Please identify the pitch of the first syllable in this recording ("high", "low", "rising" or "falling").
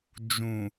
low